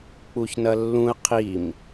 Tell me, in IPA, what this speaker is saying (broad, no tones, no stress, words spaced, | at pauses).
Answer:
k͡puçnɐlːũə̯ qʰim